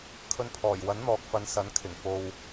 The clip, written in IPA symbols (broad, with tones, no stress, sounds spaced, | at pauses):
kʰ ɵ˨ n pʰ ɔː˨˩ j w ɐ˨˥ n n̪ ɔː˨ k̚ f ɐ˨˧ n s ɐ˨˥ n kʰ ɪ˨˩ ŋ f o˨ w